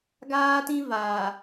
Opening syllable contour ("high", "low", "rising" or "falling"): high